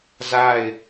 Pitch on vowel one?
falling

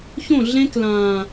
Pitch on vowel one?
falling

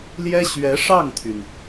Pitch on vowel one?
high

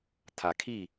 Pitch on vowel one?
low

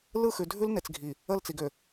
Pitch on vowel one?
falling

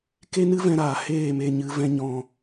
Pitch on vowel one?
high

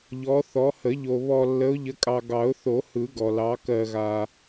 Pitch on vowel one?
rising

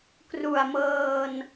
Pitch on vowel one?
low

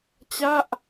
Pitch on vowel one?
falling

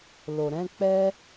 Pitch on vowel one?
low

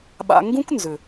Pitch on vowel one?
low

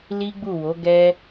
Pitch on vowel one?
high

